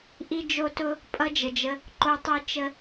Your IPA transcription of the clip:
ʔi˦d͡ʒo˦tʊ˦ | pʼʌ˦d͡ʒə˨d͡ʒə˧ | ǃo˧tˤi˧ t͡ʃə˧

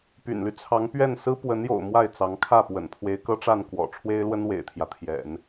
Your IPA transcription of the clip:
py̰˨˩nly˦ t͡sʰɑ˧˥ŋ pɥɛ˥˩n sɹ̩˥pwə˧˥njo̰˨˩ʊ̯ mwa˥˩ɪ̯t͡sɑ˧˥ŋkʰä˥˩ pwə̰˨˩npʰwe˧˥ɪ̯kɤ˥ʈ͡ʂa˥˩n kwɔ̰˨˩ʈ͡ʂʰwe˥ɪ̯lwə˥n wḛ˨˩ɪ̯t̪ʰjä˦t̪ʰjɛ̰˨˩˦n

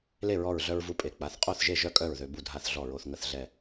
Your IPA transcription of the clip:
le˥˩ɹɔ˧˩ɹɮœ˧ɹ vu˧pʼe˩˧˩ k͡pa˩˧˩θ qʼo˥˩θʒe˥˩ʒœ˥˩ kʼœ˥˩ɹðø˧ bu˥˩dʱa˥˩θ ɮɔ˥˩ɹo˧θ ŋə˥˩θ ɮɛ˥˩

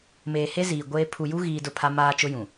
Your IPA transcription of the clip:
meː˨he˦ziː˨ ɡʷeː˦ pʰu˨ju˦ɣiː˨ dʊ˦˨pʰa˦ maː˦t͡ʃʊ˦jũ˨

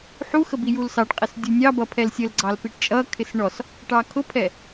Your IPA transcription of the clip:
ħuxəbijul sɑʈqʼɪs dʲunʲɑbʌ pʰɛlsʲəlɡ͡ǀɑl piʈt͡ʃʼʌ kʰɪsɳɔs | ʈɑkʰʊpʰɛ

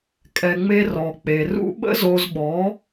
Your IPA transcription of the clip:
kʼɛ˨ŋ͡me˧ rɔ˨ k͡pe˨rṵ˦ ɓə̰˦zo˧zɓɔ˨˦

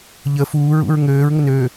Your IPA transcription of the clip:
ʎə fuːɹṵɹ ŋøːɹ ŋənøː

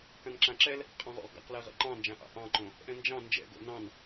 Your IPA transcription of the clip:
kãnǁãǁɛl | qʼɑ̃ʁo̰ʁ ɡa̰qlɛ ʁɛ̰ǃɑ̃nd͡ʒãʔɑ̰ ʔɑ̃ǃõ | ʔɛ̃nd͡ʒɑ̃ nd͡ʒɛ̰ɡo̰ nɑ̃n

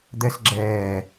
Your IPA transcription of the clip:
d̪ɛsɡ͡ǁɛː

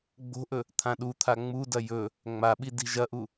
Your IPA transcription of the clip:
ɡ͡bo̤ʔɵ | t̪ʰãɗut̪ʰa ŋ͡mudɐ jɵ | ŋ͡maɓi di̤ʒɐʔu

